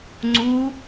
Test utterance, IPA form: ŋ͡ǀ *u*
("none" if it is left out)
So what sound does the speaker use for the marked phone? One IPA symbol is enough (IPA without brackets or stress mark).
u